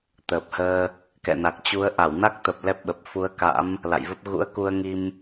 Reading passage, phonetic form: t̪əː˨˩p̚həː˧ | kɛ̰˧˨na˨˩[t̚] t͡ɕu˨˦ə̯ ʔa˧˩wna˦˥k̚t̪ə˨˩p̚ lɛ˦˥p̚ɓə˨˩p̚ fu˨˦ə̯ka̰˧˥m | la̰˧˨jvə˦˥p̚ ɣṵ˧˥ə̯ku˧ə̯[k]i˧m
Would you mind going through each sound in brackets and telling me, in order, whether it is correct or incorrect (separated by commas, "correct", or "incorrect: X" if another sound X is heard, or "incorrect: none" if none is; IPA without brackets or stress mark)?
incorrect: k̚, incorrect: ŋ